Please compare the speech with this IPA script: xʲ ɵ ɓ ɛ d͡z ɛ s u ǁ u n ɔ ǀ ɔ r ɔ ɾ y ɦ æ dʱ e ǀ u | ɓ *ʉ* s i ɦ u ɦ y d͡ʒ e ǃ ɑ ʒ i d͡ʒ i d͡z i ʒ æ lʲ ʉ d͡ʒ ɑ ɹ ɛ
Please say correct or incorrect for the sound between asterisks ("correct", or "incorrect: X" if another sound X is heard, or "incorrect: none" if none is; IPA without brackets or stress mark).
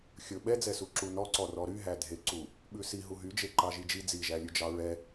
correct